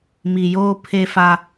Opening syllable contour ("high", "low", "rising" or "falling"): low